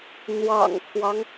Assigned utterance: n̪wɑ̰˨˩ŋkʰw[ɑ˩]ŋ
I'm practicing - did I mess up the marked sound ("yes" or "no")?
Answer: yes